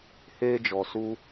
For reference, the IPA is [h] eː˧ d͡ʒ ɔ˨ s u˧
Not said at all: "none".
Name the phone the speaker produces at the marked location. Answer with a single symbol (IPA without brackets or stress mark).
h